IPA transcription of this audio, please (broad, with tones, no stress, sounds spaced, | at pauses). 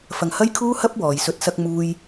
f ɐ˧ ŋ h ɐ˥ j kʰ uː˥ h ɐ˥ p̚ w ɔː˨ j s ɵ˨˥ t̚ s ɐ˧ k̚ m uː˧ j